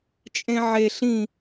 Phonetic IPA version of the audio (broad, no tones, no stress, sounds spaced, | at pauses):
t͡ʃʼ ẽ ʕ e ɬ ĩ